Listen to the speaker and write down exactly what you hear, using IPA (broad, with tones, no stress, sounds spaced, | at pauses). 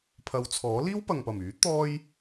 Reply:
pʰ ɐ˨˧ w t͡sʰ ɔː˨˥ l iː˥ w p ɐ˨ ŋ p ɐ˨˩ m yː˨˥ t̪ ɔː˥ j